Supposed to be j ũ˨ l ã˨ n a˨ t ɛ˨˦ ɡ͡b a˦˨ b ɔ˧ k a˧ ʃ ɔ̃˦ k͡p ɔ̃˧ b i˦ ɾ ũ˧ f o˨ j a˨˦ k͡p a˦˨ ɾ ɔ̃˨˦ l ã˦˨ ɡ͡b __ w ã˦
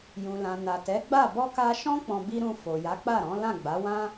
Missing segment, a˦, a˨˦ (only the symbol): a˨˦